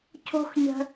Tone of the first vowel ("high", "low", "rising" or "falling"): high